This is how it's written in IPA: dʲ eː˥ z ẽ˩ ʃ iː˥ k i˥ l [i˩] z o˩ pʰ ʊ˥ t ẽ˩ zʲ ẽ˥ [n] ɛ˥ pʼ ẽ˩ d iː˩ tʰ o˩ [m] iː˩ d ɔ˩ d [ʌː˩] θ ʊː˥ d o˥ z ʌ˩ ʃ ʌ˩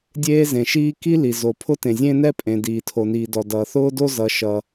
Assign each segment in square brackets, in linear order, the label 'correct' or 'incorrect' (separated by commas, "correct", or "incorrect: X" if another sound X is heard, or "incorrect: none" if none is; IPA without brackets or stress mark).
correct, correct, incorrect: n, correct